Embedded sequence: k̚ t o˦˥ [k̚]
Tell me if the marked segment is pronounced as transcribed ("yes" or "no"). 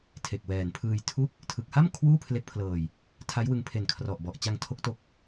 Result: yes